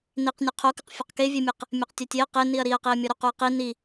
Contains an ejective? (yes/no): no